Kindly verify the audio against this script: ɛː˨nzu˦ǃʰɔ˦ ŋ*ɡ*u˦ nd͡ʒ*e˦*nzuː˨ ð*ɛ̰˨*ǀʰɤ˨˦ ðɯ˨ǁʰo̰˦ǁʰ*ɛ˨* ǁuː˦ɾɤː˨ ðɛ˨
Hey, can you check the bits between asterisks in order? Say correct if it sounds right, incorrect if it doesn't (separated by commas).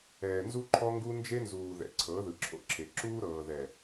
correct, correct, correct, incorrect